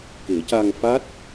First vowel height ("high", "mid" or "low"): mid